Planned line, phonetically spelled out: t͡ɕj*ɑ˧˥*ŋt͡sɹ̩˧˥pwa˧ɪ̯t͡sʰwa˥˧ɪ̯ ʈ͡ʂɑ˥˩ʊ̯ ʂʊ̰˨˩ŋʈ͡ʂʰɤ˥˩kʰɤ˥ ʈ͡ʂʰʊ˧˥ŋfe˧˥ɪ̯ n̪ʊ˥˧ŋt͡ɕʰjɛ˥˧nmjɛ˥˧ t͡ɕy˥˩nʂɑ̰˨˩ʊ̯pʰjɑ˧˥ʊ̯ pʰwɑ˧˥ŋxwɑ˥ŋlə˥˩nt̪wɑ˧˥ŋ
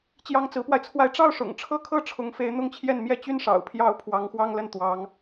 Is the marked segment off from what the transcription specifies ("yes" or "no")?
yes